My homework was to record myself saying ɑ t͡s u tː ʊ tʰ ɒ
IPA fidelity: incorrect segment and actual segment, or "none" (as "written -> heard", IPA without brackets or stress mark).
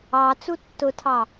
ɒ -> ɑ